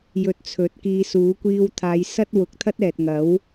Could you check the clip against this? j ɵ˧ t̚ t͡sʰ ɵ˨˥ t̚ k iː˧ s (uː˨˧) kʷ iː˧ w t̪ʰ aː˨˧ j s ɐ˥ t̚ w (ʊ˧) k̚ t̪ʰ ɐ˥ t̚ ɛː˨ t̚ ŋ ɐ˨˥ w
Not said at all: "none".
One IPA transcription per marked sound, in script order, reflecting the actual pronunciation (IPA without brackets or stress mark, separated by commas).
uː˨˥, ʊ˨